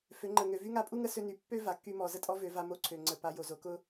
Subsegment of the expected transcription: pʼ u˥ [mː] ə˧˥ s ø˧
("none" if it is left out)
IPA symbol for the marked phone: ŋ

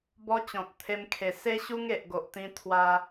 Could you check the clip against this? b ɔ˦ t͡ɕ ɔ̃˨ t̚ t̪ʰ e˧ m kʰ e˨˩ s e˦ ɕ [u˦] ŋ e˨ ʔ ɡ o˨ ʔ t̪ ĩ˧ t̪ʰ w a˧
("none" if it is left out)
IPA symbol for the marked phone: u˦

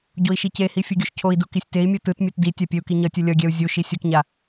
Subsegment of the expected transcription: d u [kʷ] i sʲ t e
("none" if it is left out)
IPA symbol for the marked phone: k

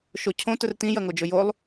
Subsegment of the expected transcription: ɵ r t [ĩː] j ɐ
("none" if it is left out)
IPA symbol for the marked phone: ĩ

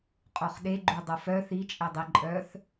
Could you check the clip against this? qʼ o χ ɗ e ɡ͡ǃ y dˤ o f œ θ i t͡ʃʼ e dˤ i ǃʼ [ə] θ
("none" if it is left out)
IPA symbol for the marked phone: œ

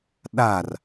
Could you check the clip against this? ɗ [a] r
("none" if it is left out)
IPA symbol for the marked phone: a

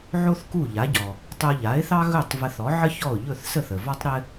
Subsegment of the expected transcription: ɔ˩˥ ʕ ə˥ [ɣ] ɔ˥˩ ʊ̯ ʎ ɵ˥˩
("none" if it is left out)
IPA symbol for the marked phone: ç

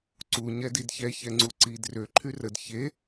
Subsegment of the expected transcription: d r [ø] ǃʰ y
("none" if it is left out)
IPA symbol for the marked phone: ø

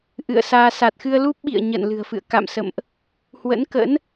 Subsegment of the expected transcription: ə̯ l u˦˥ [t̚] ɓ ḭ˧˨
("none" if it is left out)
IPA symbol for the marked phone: p̚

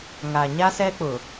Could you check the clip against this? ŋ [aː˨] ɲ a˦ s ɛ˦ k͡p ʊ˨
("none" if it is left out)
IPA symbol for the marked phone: aː˨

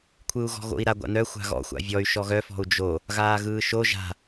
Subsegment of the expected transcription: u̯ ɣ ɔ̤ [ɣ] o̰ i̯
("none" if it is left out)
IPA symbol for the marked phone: ɣ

